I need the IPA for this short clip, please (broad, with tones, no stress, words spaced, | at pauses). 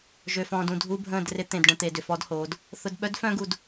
ʒø˨fɔ̃ː˨dũ˦˨ dʱu˦bʱə̃ː˦˨drɪ˦ t̪ẽ˨dɖə̃˨t̪e˨dʏ˨ fɔ˦dhoː˨˦d | θʊ˨dɓœ˦d fœ̃˦ɡu˨d